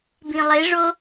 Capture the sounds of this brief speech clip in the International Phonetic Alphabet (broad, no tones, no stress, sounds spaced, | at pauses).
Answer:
b ĩ lˠ e ʐ o